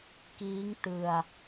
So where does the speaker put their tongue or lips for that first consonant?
velum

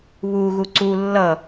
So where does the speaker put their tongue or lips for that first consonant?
lips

